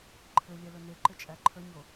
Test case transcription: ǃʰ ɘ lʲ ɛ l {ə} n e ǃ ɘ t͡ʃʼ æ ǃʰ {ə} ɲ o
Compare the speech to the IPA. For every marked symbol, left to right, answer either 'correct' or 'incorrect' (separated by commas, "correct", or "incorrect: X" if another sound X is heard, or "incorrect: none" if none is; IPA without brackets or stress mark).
incorrect: ɵ, correct